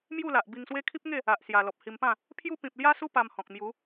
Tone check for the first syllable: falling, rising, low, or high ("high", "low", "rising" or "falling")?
falling